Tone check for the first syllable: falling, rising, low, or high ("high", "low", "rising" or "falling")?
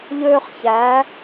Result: high